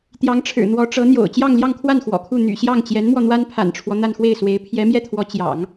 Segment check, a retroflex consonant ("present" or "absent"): present